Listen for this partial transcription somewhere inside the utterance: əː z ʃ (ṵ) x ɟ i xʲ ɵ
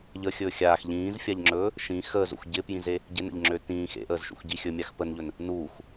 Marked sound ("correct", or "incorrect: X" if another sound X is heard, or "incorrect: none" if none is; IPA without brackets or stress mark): correct